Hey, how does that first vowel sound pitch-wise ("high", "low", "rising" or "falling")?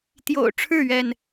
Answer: low